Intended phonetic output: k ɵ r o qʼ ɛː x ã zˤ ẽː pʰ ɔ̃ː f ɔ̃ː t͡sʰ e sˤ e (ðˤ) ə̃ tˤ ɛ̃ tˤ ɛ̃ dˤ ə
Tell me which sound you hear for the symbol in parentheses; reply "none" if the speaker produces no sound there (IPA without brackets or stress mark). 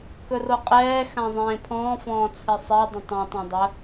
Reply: dˤ